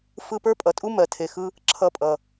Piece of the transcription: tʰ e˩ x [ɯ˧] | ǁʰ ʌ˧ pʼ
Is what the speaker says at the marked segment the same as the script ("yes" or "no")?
yes